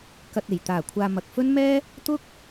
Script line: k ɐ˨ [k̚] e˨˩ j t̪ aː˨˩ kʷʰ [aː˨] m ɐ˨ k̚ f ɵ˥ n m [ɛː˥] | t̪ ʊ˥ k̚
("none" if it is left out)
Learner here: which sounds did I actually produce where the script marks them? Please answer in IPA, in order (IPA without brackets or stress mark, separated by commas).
t̚, aː˨, ɛː˥